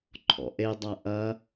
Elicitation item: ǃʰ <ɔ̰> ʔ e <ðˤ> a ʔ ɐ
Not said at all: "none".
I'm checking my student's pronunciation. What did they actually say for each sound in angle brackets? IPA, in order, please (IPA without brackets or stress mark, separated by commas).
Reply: ɔ̰, dˤ